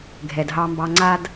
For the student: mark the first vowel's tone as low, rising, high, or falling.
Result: low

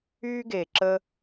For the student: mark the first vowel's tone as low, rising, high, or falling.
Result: high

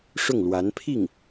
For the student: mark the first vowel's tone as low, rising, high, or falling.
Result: falling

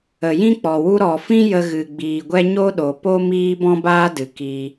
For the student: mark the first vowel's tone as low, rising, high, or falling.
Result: low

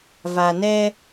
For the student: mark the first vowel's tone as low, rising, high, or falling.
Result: low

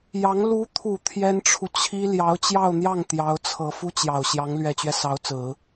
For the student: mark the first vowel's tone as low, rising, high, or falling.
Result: rising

